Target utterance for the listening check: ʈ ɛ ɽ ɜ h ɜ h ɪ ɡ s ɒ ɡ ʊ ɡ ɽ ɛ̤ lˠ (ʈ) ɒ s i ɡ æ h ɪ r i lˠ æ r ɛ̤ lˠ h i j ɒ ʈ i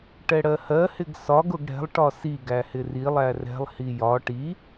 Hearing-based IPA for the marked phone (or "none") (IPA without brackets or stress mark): ʈ